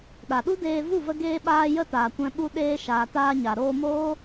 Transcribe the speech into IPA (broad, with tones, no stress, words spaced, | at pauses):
ɗa˨ɗu˦deː˧ vu˦˨və˧ɡeː˧ɓaː˧ jə˦taː˨kʷɛ̃˧ ɓu˧ɗeː˧ ʃaː˨taː˧ ɲa˨ɾoː˧moː˦